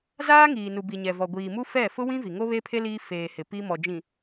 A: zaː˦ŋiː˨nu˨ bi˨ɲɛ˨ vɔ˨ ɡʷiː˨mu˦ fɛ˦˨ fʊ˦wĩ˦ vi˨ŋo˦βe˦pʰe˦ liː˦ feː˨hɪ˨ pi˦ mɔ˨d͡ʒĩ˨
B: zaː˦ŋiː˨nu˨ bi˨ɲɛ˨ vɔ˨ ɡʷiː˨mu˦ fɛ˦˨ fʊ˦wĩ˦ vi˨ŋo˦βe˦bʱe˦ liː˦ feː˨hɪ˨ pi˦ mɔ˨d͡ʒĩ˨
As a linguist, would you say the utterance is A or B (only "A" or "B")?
A